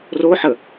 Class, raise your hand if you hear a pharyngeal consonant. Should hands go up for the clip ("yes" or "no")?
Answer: yes